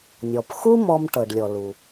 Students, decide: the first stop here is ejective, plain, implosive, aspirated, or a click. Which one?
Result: plain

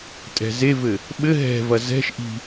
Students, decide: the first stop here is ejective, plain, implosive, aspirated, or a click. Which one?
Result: ejective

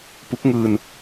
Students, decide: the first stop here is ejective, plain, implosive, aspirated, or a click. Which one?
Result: plain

